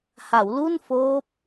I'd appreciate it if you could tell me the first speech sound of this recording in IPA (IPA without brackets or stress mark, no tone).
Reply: h